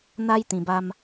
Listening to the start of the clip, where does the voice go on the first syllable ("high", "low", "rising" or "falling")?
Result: high